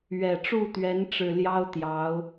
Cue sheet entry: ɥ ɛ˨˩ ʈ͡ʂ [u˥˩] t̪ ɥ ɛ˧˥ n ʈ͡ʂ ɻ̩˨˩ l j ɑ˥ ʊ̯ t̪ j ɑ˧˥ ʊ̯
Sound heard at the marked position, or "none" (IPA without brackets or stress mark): u˥˩